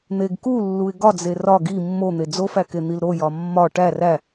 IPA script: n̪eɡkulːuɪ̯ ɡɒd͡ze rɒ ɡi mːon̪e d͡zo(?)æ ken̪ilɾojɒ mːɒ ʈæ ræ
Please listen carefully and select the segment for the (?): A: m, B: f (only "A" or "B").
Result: B